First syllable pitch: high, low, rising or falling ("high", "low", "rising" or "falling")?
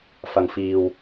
low